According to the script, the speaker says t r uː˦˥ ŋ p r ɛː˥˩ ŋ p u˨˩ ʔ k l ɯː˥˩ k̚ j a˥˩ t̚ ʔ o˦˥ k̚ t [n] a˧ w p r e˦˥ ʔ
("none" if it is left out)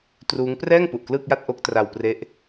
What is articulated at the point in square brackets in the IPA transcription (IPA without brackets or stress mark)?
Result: r